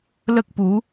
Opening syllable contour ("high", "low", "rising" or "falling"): high